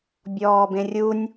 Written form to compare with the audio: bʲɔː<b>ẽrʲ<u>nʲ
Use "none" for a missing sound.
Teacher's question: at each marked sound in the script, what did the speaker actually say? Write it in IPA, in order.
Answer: b, u

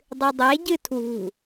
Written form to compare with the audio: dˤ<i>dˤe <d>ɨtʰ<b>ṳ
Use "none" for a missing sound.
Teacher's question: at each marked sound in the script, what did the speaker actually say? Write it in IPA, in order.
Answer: ɨ, ɟ, w

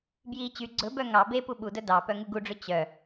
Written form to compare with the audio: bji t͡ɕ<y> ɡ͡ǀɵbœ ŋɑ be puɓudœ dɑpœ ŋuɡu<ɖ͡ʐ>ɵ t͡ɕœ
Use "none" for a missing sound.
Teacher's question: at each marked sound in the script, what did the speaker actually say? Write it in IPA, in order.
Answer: y, ɖ͡ʐ

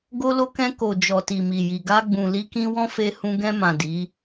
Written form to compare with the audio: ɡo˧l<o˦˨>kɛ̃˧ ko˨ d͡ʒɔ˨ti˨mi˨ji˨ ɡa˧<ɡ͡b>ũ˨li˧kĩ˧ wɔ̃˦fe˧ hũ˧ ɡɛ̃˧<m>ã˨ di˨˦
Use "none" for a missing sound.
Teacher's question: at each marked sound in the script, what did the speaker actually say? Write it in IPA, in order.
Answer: o˧, ɡ͡b, m

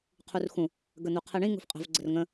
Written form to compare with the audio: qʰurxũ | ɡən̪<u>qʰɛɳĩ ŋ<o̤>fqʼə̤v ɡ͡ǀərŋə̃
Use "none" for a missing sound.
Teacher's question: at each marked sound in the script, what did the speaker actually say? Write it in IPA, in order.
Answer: u, ṳ

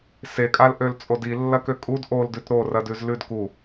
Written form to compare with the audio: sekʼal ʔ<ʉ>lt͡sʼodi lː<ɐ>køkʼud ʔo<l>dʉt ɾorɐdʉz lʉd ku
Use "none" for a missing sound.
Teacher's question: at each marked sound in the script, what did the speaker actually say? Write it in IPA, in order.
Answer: ø, ɐ, l

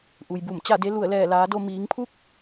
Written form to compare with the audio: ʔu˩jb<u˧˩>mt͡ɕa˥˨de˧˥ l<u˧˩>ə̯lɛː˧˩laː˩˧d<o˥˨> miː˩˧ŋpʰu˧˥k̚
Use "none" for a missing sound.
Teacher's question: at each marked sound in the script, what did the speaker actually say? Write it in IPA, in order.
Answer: u˧˩, u˧˩, o˧

